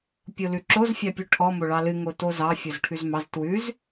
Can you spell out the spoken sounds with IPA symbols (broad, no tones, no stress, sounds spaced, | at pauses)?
pʲ o l ʉ ǁ o z fʲ ɑ pʲ ʉ ʈʰ ɔ m o ɭ ɑ l ɨ ŋ o t o z ɑ fʲ o z ʈʰ ʉ z m ɑ z t w ʉ z